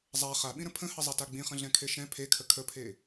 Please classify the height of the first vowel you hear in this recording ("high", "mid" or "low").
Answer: low